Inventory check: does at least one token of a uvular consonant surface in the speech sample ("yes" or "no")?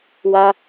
no